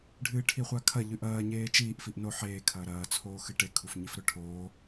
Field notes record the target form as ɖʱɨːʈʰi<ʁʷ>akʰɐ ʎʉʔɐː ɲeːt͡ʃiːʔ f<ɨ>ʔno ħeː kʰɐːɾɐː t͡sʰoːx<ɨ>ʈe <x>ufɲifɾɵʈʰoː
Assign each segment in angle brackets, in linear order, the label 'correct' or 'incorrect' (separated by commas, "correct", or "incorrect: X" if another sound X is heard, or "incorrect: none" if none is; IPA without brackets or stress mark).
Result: incorrect: χʷ, incorrect: i, correct, incorrect: kʰ